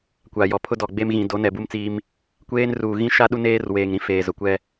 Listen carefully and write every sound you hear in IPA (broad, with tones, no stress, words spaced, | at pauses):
kʷa˨jɔ˨ pʰʊ˦dɔ˨ɡ͡be˦m ɣĩ˨do˨˦ nɛ˨bu˦mt͡siː˦m | kʷeː˦n ruː˨ɣĩ˦ʃa˦ ɗu˦neː˦rweː˨ŋɾĩ˦ feː˨zʊ˨kʷɛ˦